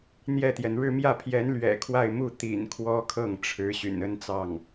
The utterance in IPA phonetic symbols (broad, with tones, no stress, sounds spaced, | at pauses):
n̪ j ɛ˥˩ t̪ j ɛ˩ n ɻ ɻ̩˥˧ m j ä˥˩ pʰ j ɛ˧˥ n l ɥ ɛ̰˨˩ kʰ w a˥˧ ɪ̯ m u˥˩ t̪ ḭ˨˩ n kʰ w ɔ˥ kʰ ɤ˥˩ ŋ ʈ͡ʂʰ ɻ̩˧˥ ɕ y̰˨˩ n ə˥ n t͡s ɑ˥˩ ŋ